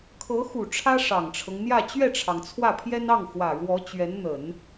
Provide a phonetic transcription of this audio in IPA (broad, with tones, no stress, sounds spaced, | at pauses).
kʰ ɤ˧˥ x u˨˩ ʈ͡ʂʰ ä˥ ʂ ɑ˨˩ ŋ ʈ͡ʂʰ ɤ˦ ŋ n̪ j ä˥˧ t͡ɕ ɥ ɛ˥˩ ʈ͡ʂʰ ɑ˩ ŋ t͡sʰ w ä˥˩ pʰ j ɛ˥ n ɑ˥˩ ŋ x w ä˨˩ ɻ w ɔ˧˥ t͡ɕ ɥ ɛ˧˥ n n̪ ə˨˩˦ n